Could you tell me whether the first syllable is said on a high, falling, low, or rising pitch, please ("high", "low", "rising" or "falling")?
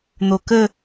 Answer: low